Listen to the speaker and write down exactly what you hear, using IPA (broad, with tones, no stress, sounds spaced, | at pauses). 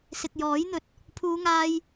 s ɪ˨ k̚ j ɔː˨˥ j n̪ ɵ˨˥ t̚ | pʰ uː˨˧ ŋ aː˧ j